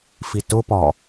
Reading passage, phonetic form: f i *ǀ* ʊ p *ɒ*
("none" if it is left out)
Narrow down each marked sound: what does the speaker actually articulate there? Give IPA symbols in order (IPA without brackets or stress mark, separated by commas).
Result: t, ɒ